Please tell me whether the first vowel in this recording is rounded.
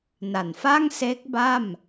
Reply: no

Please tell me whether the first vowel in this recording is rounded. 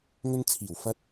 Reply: yes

